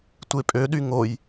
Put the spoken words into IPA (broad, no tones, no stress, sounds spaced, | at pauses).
tʷ e pʼ ø ɗ y ŋ o j